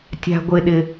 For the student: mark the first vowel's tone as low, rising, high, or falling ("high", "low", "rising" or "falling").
high